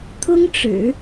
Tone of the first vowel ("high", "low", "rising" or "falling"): high